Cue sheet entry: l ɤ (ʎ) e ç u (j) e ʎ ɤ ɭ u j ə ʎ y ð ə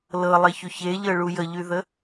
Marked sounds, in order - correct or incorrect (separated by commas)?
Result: incorrect, incorrect